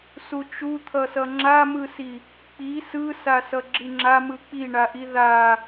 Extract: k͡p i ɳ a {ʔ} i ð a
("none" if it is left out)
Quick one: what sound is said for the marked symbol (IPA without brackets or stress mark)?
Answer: ʔ